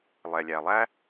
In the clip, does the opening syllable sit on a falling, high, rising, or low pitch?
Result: low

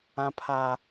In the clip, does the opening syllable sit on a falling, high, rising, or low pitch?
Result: high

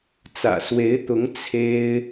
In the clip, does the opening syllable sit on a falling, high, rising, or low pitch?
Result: low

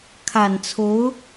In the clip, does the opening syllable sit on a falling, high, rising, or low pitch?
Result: low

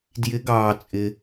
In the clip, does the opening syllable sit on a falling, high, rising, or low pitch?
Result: rising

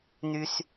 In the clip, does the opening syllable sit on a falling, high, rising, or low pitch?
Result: low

